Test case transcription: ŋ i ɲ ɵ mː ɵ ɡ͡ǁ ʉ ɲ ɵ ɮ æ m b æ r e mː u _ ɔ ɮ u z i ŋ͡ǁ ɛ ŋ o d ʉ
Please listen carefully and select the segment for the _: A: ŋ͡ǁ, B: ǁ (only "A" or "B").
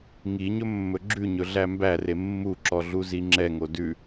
B